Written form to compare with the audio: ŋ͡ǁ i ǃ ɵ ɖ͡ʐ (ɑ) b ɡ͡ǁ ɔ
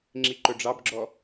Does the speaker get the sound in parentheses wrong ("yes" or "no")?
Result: no